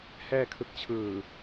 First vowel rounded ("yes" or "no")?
no